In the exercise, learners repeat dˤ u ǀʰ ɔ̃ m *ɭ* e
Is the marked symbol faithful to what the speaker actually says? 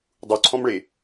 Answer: yes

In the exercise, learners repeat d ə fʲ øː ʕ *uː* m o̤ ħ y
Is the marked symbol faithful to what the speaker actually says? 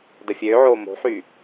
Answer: no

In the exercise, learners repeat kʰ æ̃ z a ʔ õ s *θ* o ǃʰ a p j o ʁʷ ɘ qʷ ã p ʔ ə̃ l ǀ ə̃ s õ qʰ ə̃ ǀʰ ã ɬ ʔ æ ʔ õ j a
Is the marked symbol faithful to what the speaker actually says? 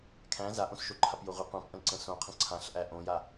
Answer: no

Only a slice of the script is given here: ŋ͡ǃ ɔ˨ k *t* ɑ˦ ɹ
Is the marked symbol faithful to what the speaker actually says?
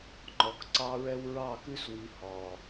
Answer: no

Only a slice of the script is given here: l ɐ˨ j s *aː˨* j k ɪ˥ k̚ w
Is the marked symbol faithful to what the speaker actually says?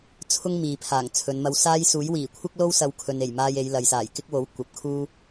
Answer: no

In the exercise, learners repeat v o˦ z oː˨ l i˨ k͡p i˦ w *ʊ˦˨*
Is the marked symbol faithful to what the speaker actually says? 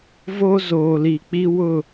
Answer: yes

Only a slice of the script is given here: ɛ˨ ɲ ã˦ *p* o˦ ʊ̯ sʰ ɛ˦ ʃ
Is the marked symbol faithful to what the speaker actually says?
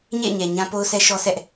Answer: yes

